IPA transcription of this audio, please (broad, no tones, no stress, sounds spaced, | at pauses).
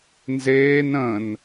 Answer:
n z eː n ə̃ n